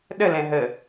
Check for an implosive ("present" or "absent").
present